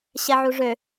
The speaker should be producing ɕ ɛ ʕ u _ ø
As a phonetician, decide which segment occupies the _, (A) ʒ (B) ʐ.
B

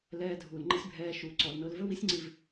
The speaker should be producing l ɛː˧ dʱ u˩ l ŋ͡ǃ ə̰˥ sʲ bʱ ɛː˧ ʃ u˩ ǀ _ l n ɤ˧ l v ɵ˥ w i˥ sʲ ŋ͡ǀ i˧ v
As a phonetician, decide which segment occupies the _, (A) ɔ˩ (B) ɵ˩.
A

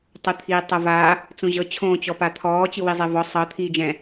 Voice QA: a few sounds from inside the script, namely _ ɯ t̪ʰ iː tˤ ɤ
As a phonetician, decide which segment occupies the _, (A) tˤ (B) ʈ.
A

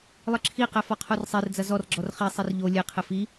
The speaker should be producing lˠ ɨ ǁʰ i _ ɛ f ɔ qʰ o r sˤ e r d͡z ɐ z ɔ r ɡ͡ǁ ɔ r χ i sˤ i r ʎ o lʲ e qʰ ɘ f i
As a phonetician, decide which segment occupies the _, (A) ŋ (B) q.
B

